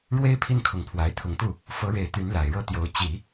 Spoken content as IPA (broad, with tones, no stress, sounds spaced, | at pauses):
ɻ w e˥ ɪ̯ pʰ i˥˩ n kʰ ʊ˧˥ ŋ pʰ w a˧˥ ɪ̯ t̪ʰ ʊ˧˥ ŋ t̪ u˥˩ | f ɤ˧˥ ɻ e˨˩ ɪ̯ t̪ y˧˥ n l a˨˩ ɪ̯ ɻ ɤ˥˩ t̪ j o˧˥ ʊ̯ t͡ɕ i˨˩˦